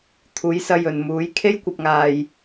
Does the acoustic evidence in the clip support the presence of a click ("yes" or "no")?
no